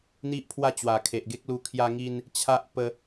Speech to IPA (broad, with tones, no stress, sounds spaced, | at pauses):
n̪ i˦ ʔ pʰ w a˦ t͡ɕ w a˨˩ kʰ e˨ ʔ ɡ e˦ k̚ l u˧ kʰ j a˦ ŋ i˦ n | t͡ɕʰ a˦ ʔ p ə˦